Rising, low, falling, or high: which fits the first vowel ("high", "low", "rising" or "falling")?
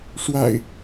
low